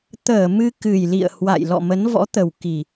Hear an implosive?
no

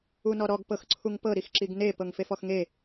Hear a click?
yes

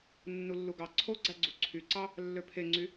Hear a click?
yes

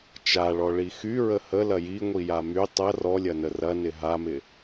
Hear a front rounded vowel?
yes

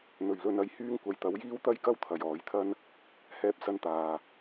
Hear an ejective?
no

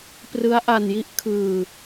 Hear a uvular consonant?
no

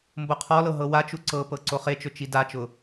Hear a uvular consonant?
yes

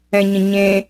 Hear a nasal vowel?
yes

